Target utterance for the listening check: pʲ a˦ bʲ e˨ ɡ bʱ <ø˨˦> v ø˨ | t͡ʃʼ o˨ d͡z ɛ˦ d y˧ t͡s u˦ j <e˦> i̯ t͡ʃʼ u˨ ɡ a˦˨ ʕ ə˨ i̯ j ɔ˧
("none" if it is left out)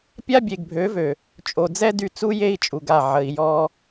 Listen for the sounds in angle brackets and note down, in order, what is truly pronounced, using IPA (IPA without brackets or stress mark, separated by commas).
ø˨˦, e˦